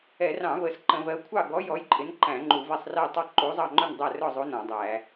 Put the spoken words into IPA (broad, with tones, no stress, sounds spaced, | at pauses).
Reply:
ɛ˧˩˧ r ɑ̃˧˩˧ v ə˧˩˧ s ǃ ə̃˧˩˧ v ɜ˨˥ kʷʰ ɑ˥˨ ɡ ɔ˨˥ j ɔ˨˥ j ǃʼ ɪ˨˥ n ǃ æ̃˧˩˧ ŋ͡ǃ u˧˩˧ v ɛ˥˨ sˤ r ɛ˥˨ tˤ ɑ˥˨ ǃ u˨˥ zˤ ɑ˥˨ ŋ͡ǃ ʊ˥˨ n dˤ æ˥˨ r ʊ˥˨ zˤ u˨˥ n ɔ̃˧˩˧ dˤ æ˧˩˧